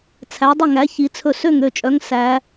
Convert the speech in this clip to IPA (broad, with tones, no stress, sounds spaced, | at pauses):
t͡sʰ æ˨˦ dˤ ɵ˥˨ ŋ æ˨˦ ç i˨˦ t͡sʰ ɵ˥˨ s ø˥˨ ŋ ø˥˨ t͡ʃʼ œ˨˦ ŋ s æ˨˦